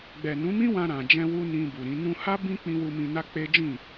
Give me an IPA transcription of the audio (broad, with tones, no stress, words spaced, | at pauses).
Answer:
ɡ͡bɛ˨nũ˨˦mĩ˦ wã˧ɾã˨ d͡ʒɛ̃˧wu˧ nĩ˧bu˨ɾĩ˨˦ nũ˧ha˦ bĩ˦ k͡pĩ˧wu˧ mĩ˧na˦k͡pe˦d͡ʒĩ˦˨